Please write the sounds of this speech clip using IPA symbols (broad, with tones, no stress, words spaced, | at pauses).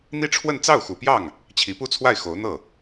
n̪i˥ʈ͡ʂʰwə˥˧n t͡sɑ˥˩ʊ̯xu˨˩pjɑ˥˩ŋ | t͡ɕʰi˧˥pu˥˧t͡sʰwa˥˩ɪ̯ xo˧˥ʊ̯n̪ɤ˥˩